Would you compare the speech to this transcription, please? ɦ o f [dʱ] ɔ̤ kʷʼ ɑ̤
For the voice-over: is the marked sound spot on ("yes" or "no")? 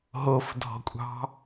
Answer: yes